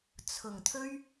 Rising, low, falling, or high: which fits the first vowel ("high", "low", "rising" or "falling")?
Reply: low